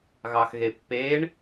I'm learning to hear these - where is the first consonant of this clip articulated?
velum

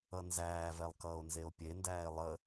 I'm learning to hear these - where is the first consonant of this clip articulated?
tongue tip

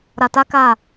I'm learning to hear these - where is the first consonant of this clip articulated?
tongue tip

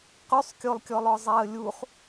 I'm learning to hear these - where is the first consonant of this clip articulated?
uvula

